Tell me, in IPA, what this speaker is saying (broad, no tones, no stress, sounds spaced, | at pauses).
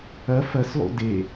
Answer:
ɐ f ɐ s lˠ ṵ d e